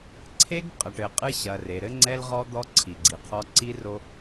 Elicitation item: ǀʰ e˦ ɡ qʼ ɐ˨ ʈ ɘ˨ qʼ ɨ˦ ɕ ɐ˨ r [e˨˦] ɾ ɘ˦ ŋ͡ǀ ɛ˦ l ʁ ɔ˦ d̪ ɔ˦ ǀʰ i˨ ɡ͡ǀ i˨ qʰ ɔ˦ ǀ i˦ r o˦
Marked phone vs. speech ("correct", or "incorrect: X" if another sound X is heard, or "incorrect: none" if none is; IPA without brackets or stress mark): incorrect: e˨